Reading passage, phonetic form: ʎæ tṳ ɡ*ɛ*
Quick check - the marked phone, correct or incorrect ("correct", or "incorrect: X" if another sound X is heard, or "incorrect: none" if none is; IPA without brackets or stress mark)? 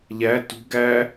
incorrect: æ